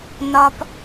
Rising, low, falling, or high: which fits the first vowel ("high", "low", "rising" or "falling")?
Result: high